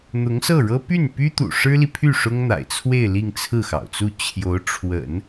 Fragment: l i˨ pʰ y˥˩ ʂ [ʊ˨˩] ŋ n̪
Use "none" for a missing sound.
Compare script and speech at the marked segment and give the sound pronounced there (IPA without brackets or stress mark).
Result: ʊ˥